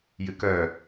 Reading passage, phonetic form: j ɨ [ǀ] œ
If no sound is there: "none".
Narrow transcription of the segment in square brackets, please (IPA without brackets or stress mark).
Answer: k